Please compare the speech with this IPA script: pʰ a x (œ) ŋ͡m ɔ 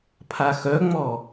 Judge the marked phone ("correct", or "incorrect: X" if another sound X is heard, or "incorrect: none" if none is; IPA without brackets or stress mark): correct